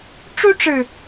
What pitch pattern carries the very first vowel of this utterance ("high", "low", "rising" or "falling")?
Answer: high